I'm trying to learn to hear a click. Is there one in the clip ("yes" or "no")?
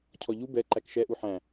yes